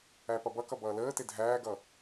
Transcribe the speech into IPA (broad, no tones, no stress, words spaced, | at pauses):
æpʌbʌkʌ bʌːləːte dʱæːɡʌː